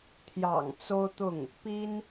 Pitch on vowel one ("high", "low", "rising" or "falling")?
low